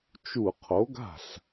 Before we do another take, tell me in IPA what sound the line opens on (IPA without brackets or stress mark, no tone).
t͡ʃ